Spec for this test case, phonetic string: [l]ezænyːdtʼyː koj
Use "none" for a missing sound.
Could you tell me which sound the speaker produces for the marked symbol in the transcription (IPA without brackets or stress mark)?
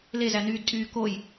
l